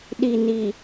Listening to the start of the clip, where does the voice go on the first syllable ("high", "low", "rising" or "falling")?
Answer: low